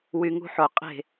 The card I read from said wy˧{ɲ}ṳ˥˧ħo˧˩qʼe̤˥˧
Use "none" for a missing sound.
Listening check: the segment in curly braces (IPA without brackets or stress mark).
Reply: ŋ